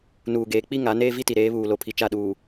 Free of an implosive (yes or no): no